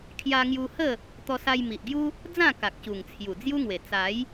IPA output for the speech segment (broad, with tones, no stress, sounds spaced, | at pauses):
kʰ j a˧ ŋ j u˧ h ə˥˧ | t̪ ɔ˧ s a˧ j m i˨ ʔ ɡ j u˦ | d͡z ã˥˧ k a˨ k̚ ɕ u˨˩ ŋ t͡sʰ j u˨˩ d͡z j u˦ ŋ w e˨˩ t͡s a˨˦ j